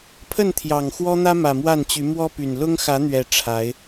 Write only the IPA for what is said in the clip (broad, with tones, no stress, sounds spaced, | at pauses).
pʰ ə˥˨ n t̪ʰ j ɑ˨˩ ŋ x w ɔ˦ n̪ ä˦ m ä˨˩ m w a˥˨ n t͡ɕ y˨˦ m w ɔ˦ p y˨˩ n l ʊ˦ ŋ x ä˨˦ n̪ ɥ ɛ˨˩ ʈ͡ʂʰ a˨˦ ɪ̯